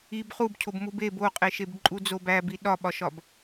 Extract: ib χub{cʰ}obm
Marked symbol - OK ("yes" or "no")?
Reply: yes